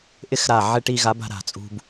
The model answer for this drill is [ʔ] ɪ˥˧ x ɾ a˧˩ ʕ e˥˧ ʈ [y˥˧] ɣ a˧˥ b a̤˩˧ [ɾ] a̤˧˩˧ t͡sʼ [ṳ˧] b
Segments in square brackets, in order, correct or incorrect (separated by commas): correct, incorrect, correct, correct